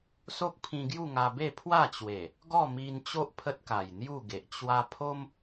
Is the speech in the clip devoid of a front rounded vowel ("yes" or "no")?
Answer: yes